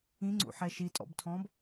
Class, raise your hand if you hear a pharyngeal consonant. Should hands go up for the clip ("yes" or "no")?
yes